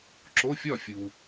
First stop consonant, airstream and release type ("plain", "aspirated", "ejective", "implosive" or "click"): click